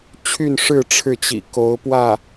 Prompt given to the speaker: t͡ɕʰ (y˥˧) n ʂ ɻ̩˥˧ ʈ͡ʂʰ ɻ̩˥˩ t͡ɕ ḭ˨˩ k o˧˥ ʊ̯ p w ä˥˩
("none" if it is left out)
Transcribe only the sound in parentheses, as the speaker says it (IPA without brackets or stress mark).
y˥˧